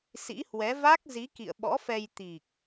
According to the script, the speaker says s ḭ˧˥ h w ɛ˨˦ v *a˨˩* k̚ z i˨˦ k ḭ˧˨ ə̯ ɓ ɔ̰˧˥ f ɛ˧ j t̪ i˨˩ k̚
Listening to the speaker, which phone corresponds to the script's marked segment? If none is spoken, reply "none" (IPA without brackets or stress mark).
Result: a˦˥